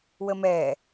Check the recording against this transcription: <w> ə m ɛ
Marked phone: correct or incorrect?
correct